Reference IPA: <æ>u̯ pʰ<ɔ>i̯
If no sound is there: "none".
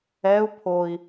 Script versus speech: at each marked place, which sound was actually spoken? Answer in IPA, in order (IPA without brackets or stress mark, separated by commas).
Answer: ɛ, o